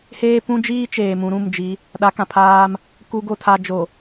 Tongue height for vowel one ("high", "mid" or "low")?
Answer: mid